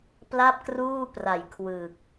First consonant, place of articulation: labial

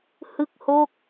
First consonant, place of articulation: glottal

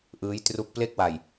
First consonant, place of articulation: glottal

